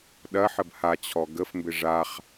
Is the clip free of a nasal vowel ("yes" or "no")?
yes